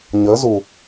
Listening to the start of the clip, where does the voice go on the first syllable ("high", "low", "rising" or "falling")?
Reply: rising